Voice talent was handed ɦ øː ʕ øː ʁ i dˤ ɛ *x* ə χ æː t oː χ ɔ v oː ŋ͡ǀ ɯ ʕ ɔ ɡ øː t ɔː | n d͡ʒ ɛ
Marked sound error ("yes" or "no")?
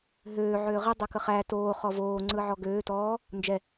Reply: yes